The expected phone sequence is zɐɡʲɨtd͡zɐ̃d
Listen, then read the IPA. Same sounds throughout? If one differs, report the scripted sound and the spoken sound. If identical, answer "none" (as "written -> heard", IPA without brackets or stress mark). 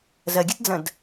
none